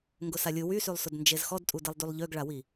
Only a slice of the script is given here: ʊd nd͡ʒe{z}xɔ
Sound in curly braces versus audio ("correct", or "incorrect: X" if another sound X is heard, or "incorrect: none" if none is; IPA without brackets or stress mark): correct